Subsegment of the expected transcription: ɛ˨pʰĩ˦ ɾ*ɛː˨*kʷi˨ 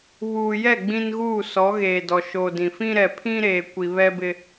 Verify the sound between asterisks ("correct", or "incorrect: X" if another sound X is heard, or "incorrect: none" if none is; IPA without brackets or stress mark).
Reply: incorrect: eː˨